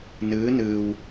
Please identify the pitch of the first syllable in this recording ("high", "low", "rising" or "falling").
rising